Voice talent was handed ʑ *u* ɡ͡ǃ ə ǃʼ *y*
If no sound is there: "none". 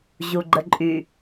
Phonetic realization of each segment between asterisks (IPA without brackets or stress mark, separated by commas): u, y